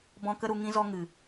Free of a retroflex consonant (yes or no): yes